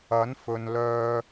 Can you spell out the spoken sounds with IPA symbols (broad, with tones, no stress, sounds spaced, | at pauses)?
ɐ˨˥ n f ɵ˨ n l œː˧